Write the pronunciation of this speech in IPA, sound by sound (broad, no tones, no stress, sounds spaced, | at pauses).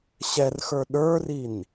ɕ ɛ r x ə˞ ɗ ə˞ r i n